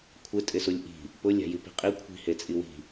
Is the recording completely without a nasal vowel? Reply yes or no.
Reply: yes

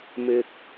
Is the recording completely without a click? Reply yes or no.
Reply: yes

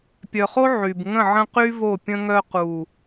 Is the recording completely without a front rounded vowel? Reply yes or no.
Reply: no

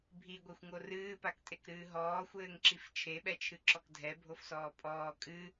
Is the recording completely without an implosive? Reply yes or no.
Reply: no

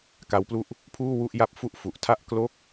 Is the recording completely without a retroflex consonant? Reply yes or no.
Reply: yes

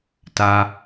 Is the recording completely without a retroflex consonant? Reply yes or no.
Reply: yes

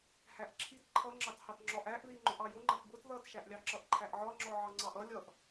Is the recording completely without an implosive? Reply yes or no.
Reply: yes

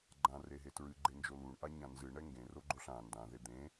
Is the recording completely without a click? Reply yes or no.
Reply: no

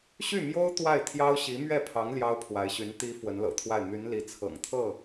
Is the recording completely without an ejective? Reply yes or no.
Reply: yes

